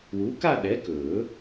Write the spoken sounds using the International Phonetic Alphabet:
w uː˨˥ k a˥˧ ɗ ɛ˨˥ k ɵː˨˩˦

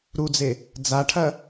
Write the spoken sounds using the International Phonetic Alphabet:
ɾ u d͡z e | d͡z a ʈʰ ɐ

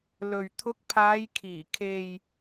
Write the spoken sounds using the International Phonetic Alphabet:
l ɵ˨ ɥ t̪ʰ ʊ˨˥ k̚ pʰ aː˨˧ j kʰ iː˨˩ kʰ e˨ j

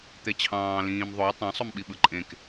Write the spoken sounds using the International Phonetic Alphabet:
t̪ e t͡ɕʰ ɑ̃ː l ĩː m ðˤ o tˤ ɑ̃ sˤ o m ɓ i ɓ ɯ ǃʼ ẽ k

